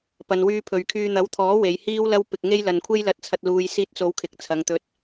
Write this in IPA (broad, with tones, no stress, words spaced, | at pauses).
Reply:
pɐ˨nwyː˧pʰɵ˨ɥkʰyː˧ n̪ɐ˨˥wt̪ʰɔː˨˥ we˨˧jhiː˥wlɐ˥w pɪ˧k̚ŋe˥jlɐ˧nkʷʰe˥j lɐ˨˥t̚t͡sʰɐ˨t̚ luː˨jsiː˧t̚t͡so˨˧w kʰɪ˨k̚t͡sʰɐ˨˧ŋt̪ɵ˧t̚